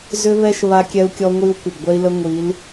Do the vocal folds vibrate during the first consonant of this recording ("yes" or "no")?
yes